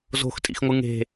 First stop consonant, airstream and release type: ejective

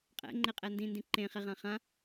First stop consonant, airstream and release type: ejective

